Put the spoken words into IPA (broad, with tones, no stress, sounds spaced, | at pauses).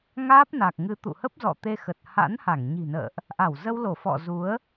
ŋ aː˦˥ p̚ n a˨˩ k̚ ŋ ɨ˨˦ t̪ ṵ˧˨ h ə˦˥ p̚ z ɔ̰˧˨ t̪ e˧ x ə˨˩ t̚ h a̰˧˥ n h a˧˩ ŋ ɲ i̤˨˩ n ə̰ː˧˨ ʔ | ʔ a˧˩ w z ə˧ w l o˧˩ f ɔ̰˧˨ z u˨˦ ə̯